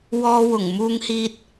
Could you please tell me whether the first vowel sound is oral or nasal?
oral